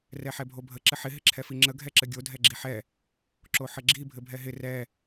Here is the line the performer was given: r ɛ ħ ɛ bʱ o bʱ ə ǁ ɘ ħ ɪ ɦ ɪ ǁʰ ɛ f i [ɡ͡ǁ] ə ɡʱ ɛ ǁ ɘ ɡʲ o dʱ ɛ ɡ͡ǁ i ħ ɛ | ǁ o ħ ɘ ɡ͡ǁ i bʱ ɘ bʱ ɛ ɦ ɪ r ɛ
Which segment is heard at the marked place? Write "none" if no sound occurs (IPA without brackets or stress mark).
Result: ŋ͡ǁ